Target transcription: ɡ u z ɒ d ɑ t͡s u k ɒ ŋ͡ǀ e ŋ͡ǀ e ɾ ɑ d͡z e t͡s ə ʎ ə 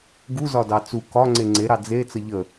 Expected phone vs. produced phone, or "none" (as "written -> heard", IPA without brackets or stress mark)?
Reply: none